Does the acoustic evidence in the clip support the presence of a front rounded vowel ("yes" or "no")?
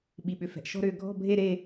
yes